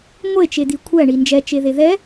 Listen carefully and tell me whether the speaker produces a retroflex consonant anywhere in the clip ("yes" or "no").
yes